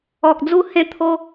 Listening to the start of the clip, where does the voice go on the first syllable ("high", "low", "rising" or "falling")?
low